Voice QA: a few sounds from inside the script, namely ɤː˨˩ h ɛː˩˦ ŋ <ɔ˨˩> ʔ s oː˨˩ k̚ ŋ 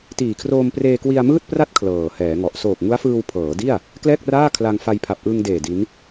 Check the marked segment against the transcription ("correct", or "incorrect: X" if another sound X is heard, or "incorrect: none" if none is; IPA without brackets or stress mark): correct